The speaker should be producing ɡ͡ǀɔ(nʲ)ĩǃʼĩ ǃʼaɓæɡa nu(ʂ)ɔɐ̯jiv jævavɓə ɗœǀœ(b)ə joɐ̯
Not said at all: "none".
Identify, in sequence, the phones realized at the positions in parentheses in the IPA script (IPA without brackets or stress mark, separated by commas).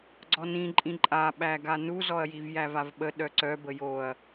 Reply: n, z, b